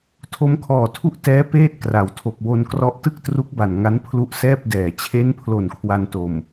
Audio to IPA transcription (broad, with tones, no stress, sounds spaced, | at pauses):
tʰ o˦˥ m kʰ ɔː˨˩ tʰ u˥˩ ʔ t ɛː˦˥ p eː˥˩ t̚ k r a˩˦ w tʰ o˨˩ k̚ w o˧ n k r ɔ˦˥ ʔ t ɯ˥˩ k̚ t r u˦˥ k̚ b a˨˩ n ŋ a˦˥ n pʰ l u˦˥ ʔ s ɛː˥˩ p̚ d ɛː˨˩ t͡ɕʰ e˦˥ n pʰ l o˨˩ n kʰ w a˧ n t o˨˩ m